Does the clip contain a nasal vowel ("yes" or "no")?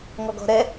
no